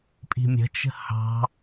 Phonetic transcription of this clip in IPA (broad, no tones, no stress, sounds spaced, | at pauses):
pʼ i̤ mʲ ə̤ t͡ʃ ə̤ h ɑ̤